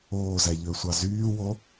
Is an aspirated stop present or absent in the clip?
absent